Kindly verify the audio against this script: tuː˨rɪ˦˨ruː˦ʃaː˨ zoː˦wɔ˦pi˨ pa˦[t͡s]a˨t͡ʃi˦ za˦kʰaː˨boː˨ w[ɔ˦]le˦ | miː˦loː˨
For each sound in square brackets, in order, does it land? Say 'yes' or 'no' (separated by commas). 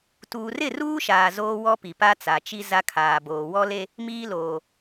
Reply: yes, yes